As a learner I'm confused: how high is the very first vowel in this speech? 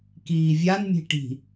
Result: high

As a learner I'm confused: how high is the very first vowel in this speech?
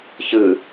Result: high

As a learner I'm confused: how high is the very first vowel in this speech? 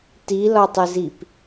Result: high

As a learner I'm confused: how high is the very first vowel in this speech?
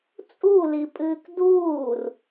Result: high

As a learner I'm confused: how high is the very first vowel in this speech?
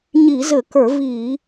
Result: high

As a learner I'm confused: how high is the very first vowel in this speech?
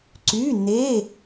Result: high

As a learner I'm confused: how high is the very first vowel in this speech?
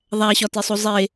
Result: low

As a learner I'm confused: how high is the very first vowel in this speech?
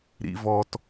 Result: high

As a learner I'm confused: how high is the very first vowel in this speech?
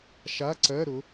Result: low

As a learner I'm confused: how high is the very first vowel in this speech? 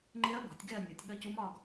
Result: mid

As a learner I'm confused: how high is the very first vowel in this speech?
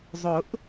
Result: high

